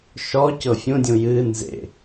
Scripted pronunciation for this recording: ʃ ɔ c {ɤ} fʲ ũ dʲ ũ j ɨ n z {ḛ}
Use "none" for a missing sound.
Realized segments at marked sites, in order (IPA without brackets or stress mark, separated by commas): ɤ, ḛ